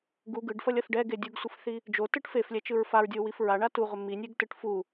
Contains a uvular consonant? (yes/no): yes